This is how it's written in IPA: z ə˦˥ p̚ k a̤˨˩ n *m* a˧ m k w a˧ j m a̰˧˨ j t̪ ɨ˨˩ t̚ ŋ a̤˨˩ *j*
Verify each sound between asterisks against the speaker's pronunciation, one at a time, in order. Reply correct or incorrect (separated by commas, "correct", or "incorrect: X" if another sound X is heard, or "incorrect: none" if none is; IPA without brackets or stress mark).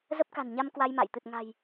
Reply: incorrect: ɲ, correct